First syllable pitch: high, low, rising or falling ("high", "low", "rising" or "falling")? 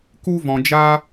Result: high